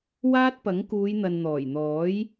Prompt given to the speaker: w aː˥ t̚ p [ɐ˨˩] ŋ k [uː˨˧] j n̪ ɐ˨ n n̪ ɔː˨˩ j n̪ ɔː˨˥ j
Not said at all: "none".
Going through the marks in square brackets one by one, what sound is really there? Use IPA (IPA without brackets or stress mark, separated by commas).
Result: ɐ˨˥, uː˨˧